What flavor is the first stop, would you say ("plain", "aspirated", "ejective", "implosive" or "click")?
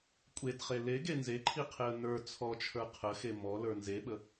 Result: ejective